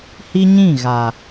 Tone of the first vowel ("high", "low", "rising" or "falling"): high